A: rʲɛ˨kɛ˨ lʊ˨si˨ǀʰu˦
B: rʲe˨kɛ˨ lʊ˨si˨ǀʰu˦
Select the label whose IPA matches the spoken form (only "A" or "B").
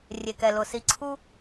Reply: B